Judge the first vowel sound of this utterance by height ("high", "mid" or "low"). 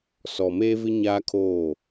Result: mid